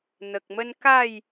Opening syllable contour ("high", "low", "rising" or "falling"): low